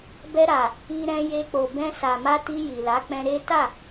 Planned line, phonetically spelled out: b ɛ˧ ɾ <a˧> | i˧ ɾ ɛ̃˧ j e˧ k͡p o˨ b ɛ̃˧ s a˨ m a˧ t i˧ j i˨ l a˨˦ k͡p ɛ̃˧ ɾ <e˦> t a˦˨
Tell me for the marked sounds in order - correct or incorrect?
incorrect: a˨, correct

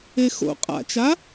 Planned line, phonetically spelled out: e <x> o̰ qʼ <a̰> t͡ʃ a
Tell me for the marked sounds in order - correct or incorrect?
correct, correct

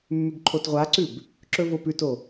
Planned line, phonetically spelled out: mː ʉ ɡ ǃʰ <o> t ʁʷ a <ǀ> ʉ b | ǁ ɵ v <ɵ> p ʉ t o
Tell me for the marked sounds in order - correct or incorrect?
correct, correct, incorrect: o

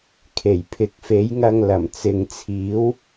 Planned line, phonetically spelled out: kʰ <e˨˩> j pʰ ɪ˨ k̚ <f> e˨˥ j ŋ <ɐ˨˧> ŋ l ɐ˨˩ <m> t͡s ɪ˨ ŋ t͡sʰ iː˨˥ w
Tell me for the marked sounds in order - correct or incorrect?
correct, correct, incorrect: ɐ˧, correct

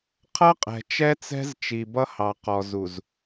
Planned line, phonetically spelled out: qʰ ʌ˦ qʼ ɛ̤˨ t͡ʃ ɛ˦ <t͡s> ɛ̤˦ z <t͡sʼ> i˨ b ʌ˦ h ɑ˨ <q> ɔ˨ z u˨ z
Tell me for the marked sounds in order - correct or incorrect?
correct, incorrect: t͡ʃ, correct

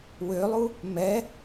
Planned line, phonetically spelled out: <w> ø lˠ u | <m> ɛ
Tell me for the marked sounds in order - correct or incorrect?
correct, correct

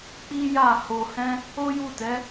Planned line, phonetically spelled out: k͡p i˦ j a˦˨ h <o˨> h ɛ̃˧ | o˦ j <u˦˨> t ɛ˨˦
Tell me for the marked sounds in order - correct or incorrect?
correct, correct

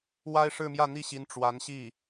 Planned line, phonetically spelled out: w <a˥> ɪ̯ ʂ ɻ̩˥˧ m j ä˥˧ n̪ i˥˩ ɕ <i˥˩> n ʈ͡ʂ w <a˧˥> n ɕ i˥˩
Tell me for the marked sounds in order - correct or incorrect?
correct, incorrect: i˧˥, correct

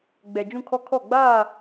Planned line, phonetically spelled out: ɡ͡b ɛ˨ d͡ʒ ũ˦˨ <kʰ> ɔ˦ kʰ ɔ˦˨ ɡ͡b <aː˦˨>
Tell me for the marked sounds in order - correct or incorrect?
correct, correct

